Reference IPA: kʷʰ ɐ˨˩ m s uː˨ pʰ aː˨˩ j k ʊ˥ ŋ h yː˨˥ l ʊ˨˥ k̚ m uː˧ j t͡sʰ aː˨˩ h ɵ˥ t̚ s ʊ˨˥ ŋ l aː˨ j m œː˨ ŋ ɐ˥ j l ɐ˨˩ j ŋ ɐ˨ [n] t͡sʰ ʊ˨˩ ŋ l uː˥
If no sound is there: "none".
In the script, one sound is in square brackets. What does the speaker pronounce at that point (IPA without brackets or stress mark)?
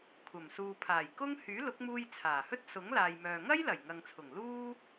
ŋ